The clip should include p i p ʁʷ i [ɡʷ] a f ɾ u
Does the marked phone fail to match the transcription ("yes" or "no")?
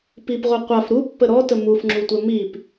yes